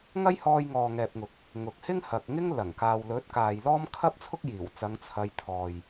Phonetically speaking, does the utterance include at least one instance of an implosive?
no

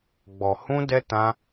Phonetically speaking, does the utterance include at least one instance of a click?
no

